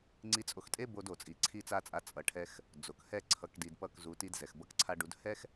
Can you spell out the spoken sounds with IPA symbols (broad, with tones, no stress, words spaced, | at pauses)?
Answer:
ŋ͡ǀi˧t͡sʼo˧xtʼe˦ bo˧do˨ t͡sʼi˨ǀʰi˧t͡sa˧t͡sʼa˨˦ t͡sʼʌ˨ʈʰɛ˧x | d͡zo˨khɛ˦˨ ǀʰʌ˨kdi˨d pʌ˦˨kzu˨˦ ti˧dzɛ˨x bʌ˧kǀʰa˧ɖu˨˦d hɛ˦x